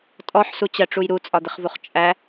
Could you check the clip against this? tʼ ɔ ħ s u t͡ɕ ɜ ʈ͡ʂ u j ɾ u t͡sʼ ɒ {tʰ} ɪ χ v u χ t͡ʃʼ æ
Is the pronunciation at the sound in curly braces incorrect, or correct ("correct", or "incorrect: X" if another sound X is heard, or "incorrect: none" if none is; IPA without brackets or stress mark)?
incorrect: d̪